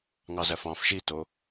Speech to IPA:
ŋ ɑ z æ f ɑ̃ f ʃ i t o

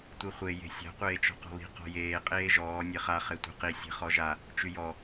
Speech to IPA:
tʷ i χʷ e j e̤ sʲ a̤ qʷ eː t͡ʃ ɔ̤ q ɔ̤ β i̤ q ɔ̤ j eː qʼ eː ʒ ɔː nʲ e χ a χ e tʷ e̤ q i sʲ e̤ χ ɔ ʒ a | t͡ʃ y j ɔ

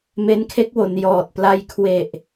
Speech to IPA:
m e˦˥ n kʰ e˦˥ k̚ w o˩˦ n j ɔː˨˩ t̚ p l a˧ j kʰ w e˨˩ ʔ

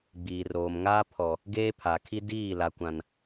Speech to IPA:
ɡ͡b iː˨ r oː˨ m ŋ aː˦ pʰ ɔ˨ | ɡ eː˦ pʰ a˨ kʰ i˦ d iː˦˨ l a˨ kʷ ã˨ n

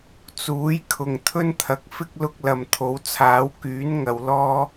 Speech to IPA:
t͡s uː˨˥ j kʰ ʊ˨ ŋ t̪ʰ ɵ˥ n t̪ʰ ɐ˨˥ k̚ f ɪ˥ k̚ l ʊ˧ k̚ l ɐ˨ m t̪ʰ o˨˥ w t͡sʰ aː˨˥ w k yː˨˥ n ŋ ɐ˨˧ w l ɔː˥

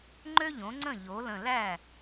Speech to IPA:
ŋ͡ǃ ø˥ ʎ õ˩˥ ŋ͡ǀ ə̃˥˩ ʎ o˩˥ l ə̃˧˩ l æ˥˩

